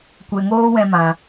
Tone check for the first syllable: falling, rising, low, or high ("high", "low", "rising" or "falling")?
low